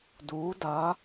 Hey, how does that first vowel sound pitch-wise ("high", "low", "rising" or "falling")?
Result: rising